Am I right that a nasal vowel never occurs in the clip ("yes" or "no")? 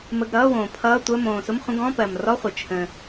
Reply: no